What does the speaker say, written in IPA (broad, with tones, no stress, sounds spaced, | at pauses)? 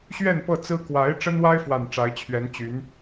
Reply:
ɕ ɥ ɛ˥˧ n p ɤ˥˩ t͡s ɹ̩˥ k w a˧˥ ɪ̯ ʈ͡ʂ ə˥ n w a˥ ɪ̯ f w a˨˩ n ʈ͡ʂ a˧˥ ɪ̯ t͡ɕʰ ɥ ɛ˧˥ n t͡ɕ y˧˥ n